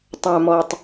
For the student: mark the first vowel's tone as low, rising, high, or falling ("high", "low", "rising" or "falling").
low